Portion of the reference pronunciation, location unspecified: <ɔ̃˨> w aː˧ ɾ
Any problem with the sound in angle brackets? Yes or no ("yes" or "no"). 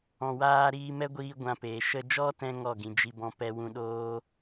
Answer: no